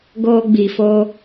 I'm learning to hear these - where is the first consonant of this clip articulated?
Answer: velum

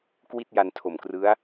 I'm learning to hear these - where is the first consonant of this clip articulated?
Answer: velum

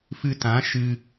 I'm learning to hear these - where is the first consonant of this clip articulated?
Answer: lips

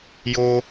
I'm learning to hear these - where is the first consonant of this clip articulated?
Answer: palate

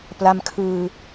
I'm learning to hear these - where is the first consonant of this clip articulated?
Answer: lips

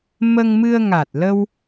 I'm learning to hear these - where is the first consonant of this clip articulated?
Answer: lips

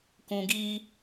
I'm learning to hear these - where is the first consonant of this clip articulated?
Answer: velum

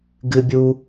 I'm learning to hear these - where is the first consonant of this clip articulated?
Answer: velum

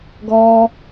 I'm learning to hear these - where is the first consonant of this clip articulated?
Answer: velum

